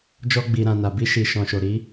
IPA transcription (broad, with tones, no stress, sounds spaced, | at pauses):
d͡ʒ ɔ˧ ɡ͡b i˨ ɾ ã˨ n a˨ b i˧ ʃ i˨ ʃ ɔ̃˨ ʃ o˨ ɾ i˨˦